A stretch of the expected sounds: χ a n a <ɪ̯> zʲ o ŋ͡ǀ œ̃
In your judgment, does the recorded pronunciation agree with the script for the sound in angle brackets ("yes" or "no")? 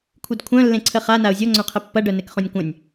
no